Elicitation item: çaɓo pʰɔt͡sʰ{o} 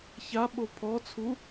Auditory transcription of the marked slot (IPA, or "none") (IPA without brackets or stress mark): u